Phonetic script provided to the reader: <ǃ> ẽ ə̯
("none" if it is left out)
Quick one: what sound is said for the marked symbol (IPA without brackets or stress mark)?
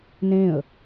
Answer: n